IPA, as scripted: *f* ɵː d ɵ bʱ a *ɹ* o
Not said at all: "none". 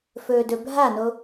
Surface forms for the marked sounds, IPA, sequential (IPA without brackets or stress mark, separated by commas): f, n